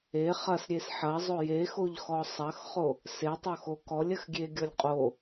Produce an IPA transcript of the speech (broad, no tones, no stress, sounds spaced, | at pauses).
e χ ɐ s ɾʲ e s ħ ɐ zˤ o j e x o ʎ x ɔ sˤ ɐ x χ o | s e tˤ o x o k ɔ lʲ ɐ x ɡʲ e ɡʲ ɔ lʲ qʼ o